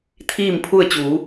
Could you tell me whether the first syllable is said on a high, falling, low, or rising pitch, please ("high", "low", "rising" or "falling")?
falling